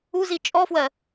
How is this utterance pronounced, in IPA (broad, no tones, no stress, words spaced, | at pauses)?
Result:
uzi t͡ʃʼɔfwɜ